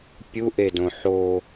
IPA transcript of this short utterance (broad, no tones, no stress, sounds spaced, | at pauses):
pʲ u ʔ e d õ ħ o